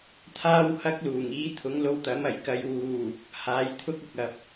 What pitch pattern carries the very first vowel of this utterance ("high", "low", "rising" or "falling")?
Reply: high